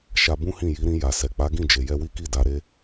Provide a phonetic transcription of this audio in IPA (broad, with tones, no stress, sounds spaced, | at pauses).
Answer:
ʃ a˧ b ũ˦ h ĩ˦˨ j i˨˦ ɾ ĩ˧ j a˨ s ɛ˨ k͡p a˨˦ ɡ ĩ˦˨ d͡ʒ e˨ j ɛ˧ w i˦ k i˦˨ d a˧ ɾ e˦